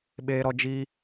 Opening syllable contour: high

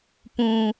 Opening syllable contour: low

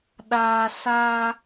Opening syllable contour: low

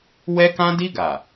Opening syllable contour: high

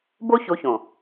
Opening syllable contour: high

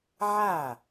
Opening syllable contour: falling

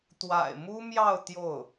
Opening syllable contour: low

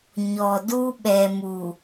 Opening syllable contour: low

